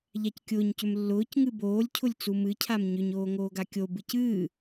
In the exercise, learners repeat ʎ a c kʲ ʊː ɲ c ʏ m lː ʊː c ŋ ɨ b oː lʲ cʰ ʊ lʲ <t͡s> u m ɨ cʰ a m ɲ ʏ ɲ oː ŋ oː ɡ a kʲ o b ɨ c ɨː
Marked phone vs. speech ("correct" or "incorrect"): correct